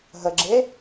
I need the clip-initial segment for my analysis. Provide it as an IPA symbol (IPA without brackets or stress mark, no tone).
ɦ